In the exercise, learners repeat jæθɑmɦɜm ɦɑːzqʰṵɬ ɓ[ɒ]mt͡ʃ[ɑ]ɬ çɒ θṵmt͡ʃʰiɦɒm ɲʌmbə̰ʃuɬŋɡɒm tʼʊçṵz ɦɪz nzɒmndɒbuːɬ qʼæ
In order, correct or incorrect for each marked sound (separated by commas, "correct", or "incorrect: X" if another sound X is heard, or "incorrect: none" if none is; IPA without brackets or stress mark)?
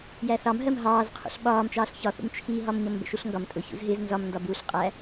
incorrect: ɒː, incorrect: ɑː